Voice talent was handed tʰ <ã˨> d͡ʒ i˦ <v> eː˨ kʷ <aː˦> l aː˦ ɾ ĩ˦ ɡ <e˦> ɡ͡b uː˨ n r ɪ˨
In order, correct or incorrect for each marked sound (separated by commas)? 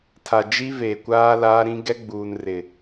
incorrect, correct, correct, incorrect